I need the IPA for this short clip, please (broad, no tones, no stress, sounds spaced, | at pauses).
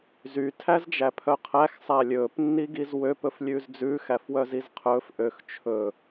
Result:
z y tʰ æ z d͡ʒ æ pʰ œ qʰ æ x sˤ æ lʲ ɵː p nː i ɡ i z w ø p ɵ f lʲ ʉː z d͡z ʉː x æ f w œ z i z qʰ ɵː f ʔ ø x t͡ʃʰ ɵ